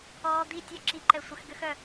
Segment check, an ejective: absent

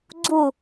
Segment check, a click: present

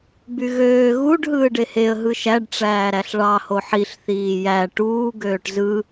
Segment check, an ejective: absent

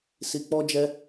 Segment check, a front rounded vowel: absent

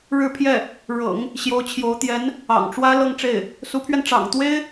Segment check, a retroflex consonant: present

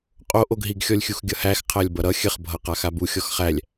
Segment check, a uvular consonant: present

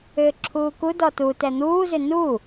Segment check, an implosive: absent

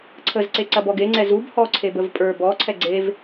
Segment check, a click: present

